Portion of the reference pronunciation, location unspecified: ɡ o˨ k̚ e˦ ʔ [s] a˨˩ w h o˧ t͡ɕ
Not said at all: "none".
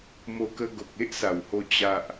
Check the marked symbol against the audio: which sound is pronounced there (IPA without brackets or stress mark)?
s